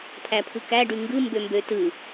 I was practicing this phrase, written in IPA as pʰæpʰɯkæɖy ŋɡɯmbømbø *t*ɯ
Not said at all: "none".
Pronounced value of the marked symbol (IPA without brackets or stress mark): t